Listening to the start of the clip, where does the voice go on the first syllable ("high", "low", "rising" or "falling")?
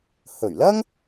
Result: low